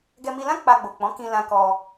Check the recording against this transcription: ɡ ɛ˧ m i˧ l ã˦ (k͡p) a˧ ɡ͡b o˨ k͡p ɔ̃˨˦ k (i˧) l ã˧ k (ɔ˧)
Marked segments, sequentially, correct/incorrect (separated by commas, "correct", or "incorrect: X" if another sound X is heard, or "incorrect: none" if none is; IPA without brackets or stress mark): correct, incorrect: ĩ˧, correct